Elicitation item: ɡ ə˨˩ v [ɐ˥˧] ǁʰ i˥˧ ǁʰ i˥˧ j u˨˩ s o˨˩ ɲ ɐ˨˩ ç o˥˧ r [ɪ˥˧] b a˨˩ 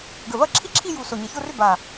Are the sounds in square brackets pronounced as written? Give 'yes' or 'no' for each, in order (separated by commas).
yes, no